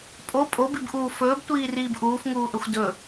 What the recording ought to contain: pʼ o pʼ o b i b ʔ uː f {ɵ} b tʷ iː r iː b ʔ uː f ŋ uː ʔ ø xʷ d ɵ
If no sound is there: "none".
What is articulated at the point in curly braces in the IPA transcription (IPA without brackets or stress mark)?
ɵː